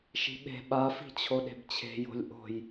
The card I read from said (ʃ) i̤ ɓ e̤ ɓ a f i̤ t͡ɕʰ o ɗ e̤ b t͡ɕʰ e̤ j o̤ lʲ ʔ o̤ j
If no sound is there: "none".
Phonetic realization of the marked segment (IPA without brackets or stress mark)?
ʃ